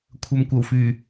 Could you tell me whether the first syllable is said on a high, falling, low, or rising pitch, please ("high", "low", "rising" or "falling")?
low